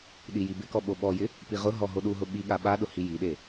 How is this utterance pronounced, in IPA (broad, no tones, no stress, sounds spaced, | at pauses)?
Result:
ɗ i j i b ɪ k ɔ ɓ o ɓ ɔ j ɪ | p i ʁ ʊ ɦ ɔ ɦ o ɗ u ɦ ʊ ɓ i ɠ a ɓ a ɗ ʊ h i j i ɗ e